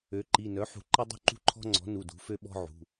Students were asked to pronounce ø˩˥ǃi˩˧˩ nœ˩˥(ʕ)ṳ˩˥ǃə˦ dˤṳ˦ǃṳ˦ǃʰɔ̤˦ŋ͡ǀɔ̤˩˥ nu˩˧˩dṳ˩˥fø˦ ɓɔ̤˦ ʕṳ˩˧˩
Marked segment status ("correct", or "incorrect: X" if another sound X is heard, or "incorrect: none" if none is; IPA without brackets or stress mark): incorrect: ħ